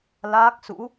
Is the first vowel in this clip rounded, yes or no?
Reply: no